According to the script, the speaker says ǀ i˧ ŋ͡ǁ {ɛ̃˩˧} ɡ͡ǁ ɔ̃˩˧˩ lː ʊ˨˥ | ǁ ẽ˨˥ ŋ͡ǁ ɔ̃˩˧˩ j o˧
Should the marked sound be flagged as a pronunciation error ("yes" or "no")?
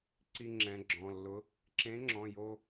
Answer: no